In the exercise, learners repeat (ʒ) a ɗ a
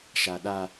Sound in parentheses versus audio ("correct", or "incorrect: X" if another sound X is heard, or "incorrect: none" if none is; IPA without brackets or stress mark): incorrect: ʃ